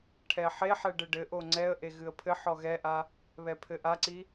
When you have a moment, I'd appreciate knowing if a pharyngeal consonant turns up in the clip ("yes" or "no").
yes